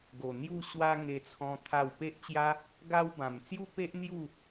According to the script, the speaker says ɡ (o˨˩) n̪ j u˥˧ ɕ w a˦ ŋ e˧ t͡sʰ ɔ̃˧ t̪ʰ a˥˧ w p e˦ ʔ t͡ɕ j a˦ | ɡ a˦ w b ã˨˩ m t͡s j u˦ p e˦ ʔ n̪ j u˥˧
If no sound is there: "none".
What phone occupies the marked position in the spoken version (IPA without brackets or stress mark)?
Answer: o˨˩